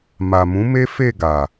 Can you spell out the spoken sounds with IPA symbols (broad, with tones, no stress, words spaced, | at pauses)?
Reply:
ma˨mũ˨˦ me˦fe˦˨ɡa˨